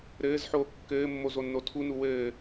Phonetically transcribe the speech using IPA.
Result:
ɾ ɘː z ħ oː kː ɘː mː o z o nː o tʰ u n u w ɘː

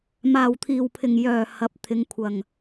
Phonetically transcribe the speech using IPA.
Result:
m aː˨˩ w t̪ʰ iː˨˩ w pʰ ɪ˨˩ ŋ j œː˨˩ h ɐ˨˥ p̚ t̪ʰ ɪ˨˧ ŋ kʷʰ ɐ˨˩ ŋ

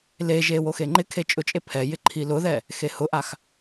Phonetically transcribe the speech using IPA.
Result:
l e ʒ e w o x e ŋ͡ǃ ɪ kʰ e t͡ʃʼ ʊ t͡ʃʼ e pʰ ɛ j ɪ ǃʰ i l ʊ ð ɛ | x e h ʊ ʔ a x

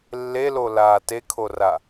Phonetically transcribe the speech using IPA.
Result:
lː e l o l aː t e kʰ o r a

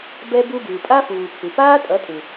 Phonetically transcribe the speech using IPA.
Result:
b ɛ˧ b u˧ b ɯː˨ pʼ a˦ f uː˨ pʰ u˨ p aː˦ tʼ ʌ˨˦ tʼ ɯ˨

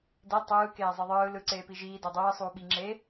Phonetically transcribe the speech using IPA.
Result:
d ɛ tˤ ɯː k eː zˤ ɯ ðˤ ɯː l ɯ ǀ eː p i ʒ iː d o dˤ ɯː sˤ uː ɓ i ŋ͡ǁ e

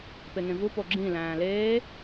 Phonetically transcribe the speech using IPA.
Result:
p e ŋ ẽ v u p o ɡ͡ǁ ĩ l æ̃ː l eː

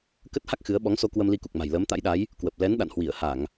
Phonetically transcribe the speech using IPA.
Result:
k ə˦˥ t̚ h a˦˥ k̚ x ɨ˨˦ ə̯ ɓ ɔ˨˦ ŋ s o˧ k w ə˧ m l i˧ k u˨˩ k̚ m a̤˨˩ j l əː˨˦ m t̪ a̰˧˥ j ɗ a˨˦ j | k w ə˨˩ p̚ l ɛ˨˦ n ɗ a̰˧˨ n h w i˧˩ ə̯ h a˧˩˨ ŋ

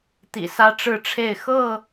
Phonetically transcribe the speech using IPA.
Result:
t̪ ḭ˨˩ s ä˦ ʈ͡ʂ ɻ̩˥˨ ʈ͡ʂʰ e˥˨ ɪ̯ x ɤ˥˨

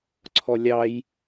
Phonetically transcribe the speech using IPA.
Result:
ǀʰ ɔ lʲ ɑ j

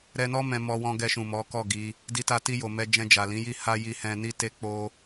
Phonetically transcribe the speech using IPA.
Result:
ɾ ɛ˧ n ɔ˦ m ɛ̃˧ m ɔ˧ w ɔ̃˧ ɡ ɛ˧ ʃ ũ˨ m ɔ˨˦ k ɔ˦˨ ɡ i˨˦ | d i˧ t a˧ t i˧ j o˨ m ɛ˧ d͡ʒ ɛ̃˧ d͡ʒ a˨ l ĩ˨˦ j i˦˨ h a˧ j i˧ h ɛ̃˧ n i˦ t e˦ k͡p o˦

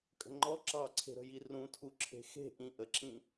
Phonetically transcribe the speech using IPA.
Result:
kʼ ə̤ ŋ͡ǃ ɔ ǁ ɑ ǀʰ e̤ ɾ ə̤ j i r ũ tʰ u ǁʰ e̤ x e̤ ʔ ĩ ʔ ə ǁ ĩ

